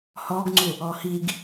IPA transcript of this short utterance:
h ɔ ɡ ŋ͡ǀ u | ɔ h i ɡ

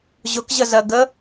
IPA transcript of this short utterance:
ʑ ʊ k ʑ ə z ɜ ɡ ə

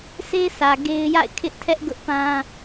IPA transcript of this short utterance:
s e˦ sʰ ä˨ ɡ e˦ ɪ̯ j a̰˦˨ ɪ̯ kʰ ɪ˦ ʔ tʰ ɛ˦ ʔ ɡ ʊ˦ ʔ p ã˦

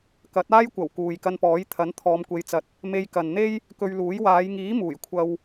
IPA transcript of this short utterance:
k ɐ˨˥ t̚ aː˥ j kʷ ɐ˨˩ w k uː˨ j k ɐ˧ n p ɔː˨˥ j t̪ʰ ɐ˨˥ n t̪ʰ ɔː˨˧ m kʷ e˨˧ j t͡s ɐ˨ t̚ | m e˧ j k ɐ˨ n n̪ e˥ j | k ɵ˧ ɥ l uː˨˥ j w aː˨˧ j ŋ iː˨˥ m uː˨˩ j kʷʰ ɐ˧ w

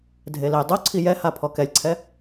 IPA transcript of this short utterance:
dʱ e l e j dˤ u ǀʰ i j ɛ h a pʰ ɔ k ɛ lʲ ǀʰ ɛ

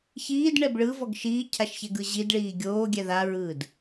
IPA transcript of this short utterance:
ç iː d ɳ ɛ b ɭ ɯ v ɔ ɡ ʃ iː cʰ a ʃ ç ɛ ɡ ɯ ʑ i d ɭ iː ɡʲ oː ɡʲ ɛ ð a ɹ ɯː d

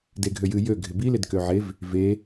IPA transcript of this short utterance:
d e ɡʱ ø j ɨ j ø ɡʱ ɪ b i l ɪ d k ø ʕ e v | v e

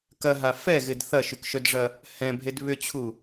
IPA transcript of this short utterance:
k ɐ ɦ a f ɛ ɣ ɪ d θ ɐ ʃ y k ʃ œ d ʐ ɐ | h ɛ̃ bʱ e d β ʏ t͡ɕʰ u

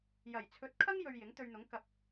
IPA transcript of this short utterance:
j ɐ˨˩ j t͡sʰ ɵ˨˥ t̚ kʰ ɐ˥ ŋ j ɵ˧ ɥ j ɪ˨˥ ŋ t̪ ɵ˧ ɥ n̪ ʊ˨˥ ŋ k ɐ˧ p̚

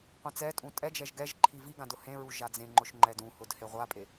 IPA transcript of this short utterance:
qʷ ɛ̃ t͡s ɛ tʼ ũ tʼ ɛ d͡ʒ ɛ ʒ ɡ ɛ ʒ ǃʰ i v i ɡ ã d ʊ h ẽ ɹ u ʒ a d͡z ẽ ŋ͡ǃ ʊ ʃ ŋ͡ǃ ɛ d ũ h ʊ d h e ʁʷ a pʼ e

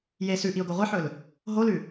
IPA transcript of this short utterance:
j e s ʉ ʔ i ʊ̯ ɡ o ʁʷ ɨ ħ ɵ l | ɦ o l ʉ

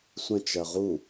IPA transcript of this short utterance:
sʷ ə̃ t͡ʃ ɜ ʁ u

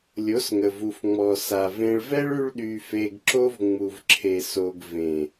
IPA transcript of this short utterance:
lʲ o˨˦ s ŋ ə˨ v u˨ f ŋ͡m ɔ˨ s a˨ v ẽ˧ ɭ v ɛ˦ ɭ y˦ ɭ ɗ y˧ f e˧ ɡ ǁ o˦ v ŋ͡m u˧ v ǁʰ e˧ s o˧ ɡ v ẽ˨

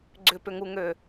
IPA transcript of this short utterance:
ɡ͡ǀ ʏ p ʏ ŋ u ŋ ø

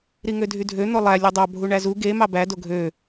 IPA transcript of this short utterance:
ɾ i ŋ ø dʱ y dʱ ø n̪ o lˠ æ lʲ ɯ dˤ ɑ bʱ u ɳ æ z u ɡ e m ɑ b æ d o ɡʱ ø

